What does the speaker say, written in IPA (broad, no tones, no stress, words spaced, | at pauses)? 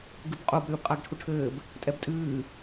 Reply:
ɡɨbqʼob ɾʲoːbqʼaɡʈʰuʈʰɘːb | tʼɛbtʼɨː